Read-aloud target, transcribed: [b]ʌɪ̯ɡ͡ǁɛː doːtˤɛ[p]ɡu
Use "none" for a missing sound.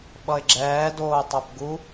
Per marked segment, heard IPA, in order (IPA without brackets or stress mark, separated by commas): ɓ, p